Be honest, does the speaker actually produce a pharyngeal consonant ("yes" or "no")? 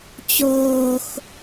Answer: no